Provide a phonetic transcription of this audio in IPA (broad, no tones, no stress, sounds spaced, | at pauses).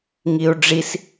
ŋ i u̯ ɖ͡ʐ i s